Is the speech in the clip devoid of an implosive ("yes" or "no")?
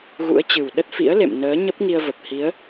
no